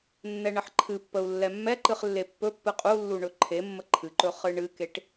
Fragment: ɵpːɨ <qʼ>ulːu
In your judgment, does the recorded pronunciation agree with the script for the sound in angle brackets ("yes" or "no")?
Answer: yes